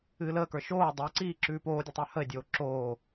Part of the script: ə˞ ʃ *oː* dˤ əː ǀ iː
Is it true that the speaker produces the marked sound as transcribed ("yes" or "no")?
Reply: yes